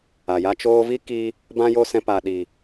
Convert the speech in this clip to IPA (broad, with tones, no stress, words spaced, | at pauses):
a˨ja˦ t͡ʃoː˧vi˦ki˧ | bã˦jo˦sɛ̃˧ pa˨ɗi˨